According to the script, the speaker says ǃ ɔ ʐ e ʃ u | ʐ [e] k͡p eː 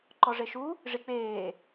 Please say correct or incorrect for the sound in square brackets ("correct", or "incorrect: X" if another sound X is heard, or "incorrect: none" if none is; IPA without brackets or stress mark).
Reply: incorrect: i